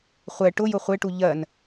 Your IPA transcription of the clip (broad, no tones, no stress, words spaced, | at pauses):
χʷɛ ʈʊjʊ χʷeʈu ʎɜn